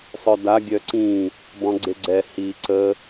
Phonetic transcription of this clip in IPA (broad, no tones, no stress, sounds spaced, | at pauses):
sˤ œ d a ɡʲ œ ǀ ĩ | b ɔ̃ ɡ͡ǀ e ɡ͡ǀ ɛ h i ǀ ə